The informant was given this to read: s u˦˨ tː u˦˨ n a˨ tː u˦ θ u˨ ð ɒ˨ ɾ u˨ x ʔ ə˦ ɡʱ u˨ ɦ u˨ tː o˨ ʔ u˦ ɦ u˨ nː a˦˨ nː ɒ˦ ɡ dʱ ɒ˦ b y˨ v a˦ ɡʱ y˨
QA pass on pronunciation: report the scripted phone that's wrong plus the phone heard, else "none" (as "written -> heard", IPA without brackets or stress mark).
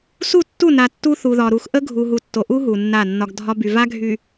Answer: none